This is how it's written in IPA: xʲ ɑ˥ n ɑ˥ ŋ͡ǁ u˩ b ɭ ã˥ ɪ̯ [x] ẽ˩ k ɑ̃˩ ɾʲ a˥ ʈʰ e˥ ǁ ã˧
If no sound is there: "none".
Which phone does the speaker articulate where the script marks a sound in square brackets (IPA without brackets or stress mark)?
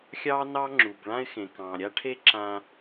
x